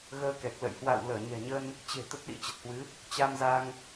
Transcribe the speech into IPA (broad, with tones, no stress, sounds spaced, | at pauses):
ɣ əː˧ k ɛ˨˩ k̚ l ə̰˧˨ j h w a̰˧˨ w l əː˧˩ ɲ ɛ̤˨˩ ɲ ə˧ n | t͡ɕ e̤˨˩ t̪ ə˦˥ t̚ ɗ ḭ˧˥ t͡ɕ ə˨˩ t̚ h w ɨ˨˦ | t͡ɕ a˧ m z a˧ ŋ